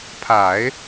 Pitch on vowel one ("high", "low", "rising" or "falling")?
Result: low